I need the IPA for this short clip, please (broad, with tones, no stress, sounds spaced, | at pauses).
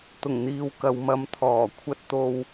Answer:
t̪ ʊ˨˩ ŋ n̪ iː˨ w k ɐ˨ w m ɐ˨˧ m t̪ʰ ɔː˨˩ kʷʰ ɐ˧ t̚ t̪ o˧ w